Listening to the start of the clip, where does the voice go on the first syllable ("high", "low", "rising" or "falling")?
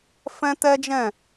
high